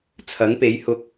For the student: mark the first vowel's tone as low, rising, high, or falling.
rising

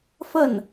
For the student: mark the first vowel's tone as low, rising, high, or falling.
falling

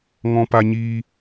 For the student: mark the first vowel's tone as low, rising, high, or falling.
high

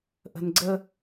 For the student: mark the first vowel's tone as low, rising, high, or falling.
low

